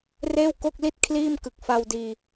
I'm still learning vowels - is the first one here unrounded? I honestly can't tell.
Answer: yes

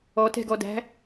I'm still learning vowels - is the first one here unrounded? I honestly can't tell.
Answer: no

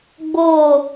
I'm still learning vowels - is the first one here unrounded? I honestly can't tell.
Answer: no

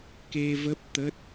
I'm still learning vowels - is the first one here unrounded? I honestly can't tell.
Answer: yes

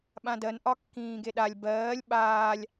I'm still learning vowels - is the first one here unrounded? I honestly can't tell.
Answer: yes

